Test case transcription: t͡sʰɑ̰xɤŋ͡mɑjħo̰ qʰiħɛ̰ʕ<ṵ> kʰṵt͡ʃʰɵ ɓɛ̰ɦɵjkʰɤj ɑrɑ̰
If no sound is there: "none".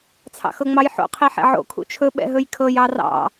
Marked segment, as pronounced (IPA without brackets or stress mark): o̰